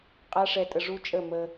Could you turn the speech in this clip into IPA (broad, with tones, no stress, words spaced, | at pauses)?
qʼa˦ʂɛ˧tʼə˧ ʐu˦t͡ʃʼə˦˨mə˧